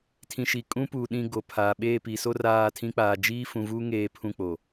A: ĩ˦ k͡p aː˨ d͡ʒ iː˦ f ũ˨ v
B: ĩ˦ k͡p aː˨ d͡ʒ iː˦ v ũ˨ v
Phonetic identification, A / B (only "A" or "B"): A